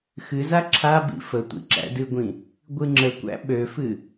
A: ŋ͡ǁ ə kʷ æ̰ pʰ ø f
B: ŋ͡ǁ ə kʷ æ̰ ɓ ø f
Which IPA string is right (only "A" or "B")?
B